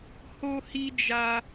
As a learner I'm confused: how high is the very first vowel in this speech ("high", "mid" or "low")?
mid